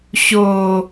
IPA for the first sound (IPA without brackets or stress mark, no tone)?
ɕ